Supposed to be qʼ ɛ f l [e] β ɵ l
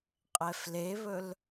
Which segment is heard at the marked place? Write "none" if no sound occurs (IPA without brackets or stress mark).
e